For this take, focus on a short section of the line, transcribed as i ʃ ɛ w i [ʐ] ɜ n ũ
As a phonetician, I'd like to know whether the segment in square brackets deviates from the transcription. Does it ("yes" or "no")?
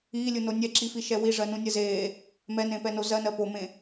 no